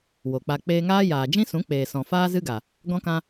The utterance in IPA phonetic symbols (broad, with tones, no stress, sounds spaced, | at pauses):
w o˨ k͡p a˧ k͡p eː˧ ŋ aː˦ j aː˨ d͡ʒ ĩ˦ s ũ˨˦ k͡p eː˨ s ɔ̃˨ f aː˦ z ɨ˦ ɡ a˨ | ɡ ɔ̃˧ k ã˧